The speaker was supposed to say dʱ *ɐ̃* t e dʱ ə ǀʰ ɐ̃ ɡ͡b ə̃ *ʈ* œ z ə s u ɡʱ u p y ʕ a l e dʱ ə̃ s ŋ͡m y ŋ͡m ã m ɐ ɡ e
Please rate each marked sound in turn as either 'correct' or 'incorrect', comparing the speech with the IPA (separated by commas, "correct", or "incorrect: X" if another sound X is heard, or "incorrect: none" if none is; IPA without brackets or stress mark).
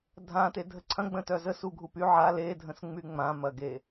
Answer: incorrect: ã, incorrect: t